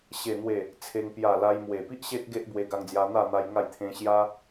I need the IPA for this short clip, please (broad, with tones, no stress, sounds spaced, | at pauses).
ɕ e˨˩ n̪ w e˨˩ | t͡sʰ e˧ ŋ p j a˨˩ l a˧ j m w e˨˩ p i˦ ʔ ɕ e˦ t̚ ɡ e˦ ʔ b w e˧ ɡ a˧ ŋ d͡z j a˧ n̪ a˥˧ n̪ a˦ j ŋ a˥˧ j t̪ʰ ẽ˦ ɕ j a˦